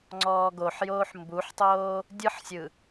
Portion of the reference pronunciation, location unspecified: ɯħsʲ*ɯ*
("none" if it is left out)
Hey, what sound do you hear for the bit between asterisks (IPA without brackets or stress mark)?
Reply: ɯ